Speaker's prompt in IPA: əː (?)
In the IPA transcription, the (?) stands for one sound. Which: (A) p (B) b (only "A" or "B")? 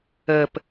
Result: A